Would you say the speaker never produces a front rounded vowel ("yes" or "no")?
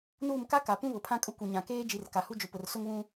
yes